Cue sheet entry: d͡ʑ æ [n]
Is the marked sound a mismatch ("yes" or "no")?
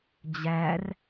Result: yes